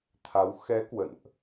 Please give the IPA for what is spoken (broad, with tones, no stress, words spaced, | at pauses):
t̪ʰa˨˦w xɛ˨˦ kwə̰˧˨nʔ